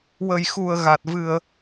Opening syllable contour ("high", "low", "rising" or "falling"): low